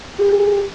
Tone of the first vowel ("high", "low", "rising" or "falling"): high